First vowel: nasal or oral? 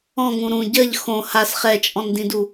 nasal